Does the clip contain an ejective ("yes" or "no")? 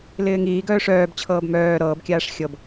no